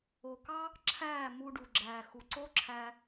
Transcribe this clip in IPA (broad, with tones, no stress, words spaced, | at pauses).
o˨kɑ˦ | ǁʰæː˦˨ mu˧ɖu˨ɡ͡ǁæː˨ xu˨ǀo˦ǁʰæ˧